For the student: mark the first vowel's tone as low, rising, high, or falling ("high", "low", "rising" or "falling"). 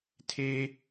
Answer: high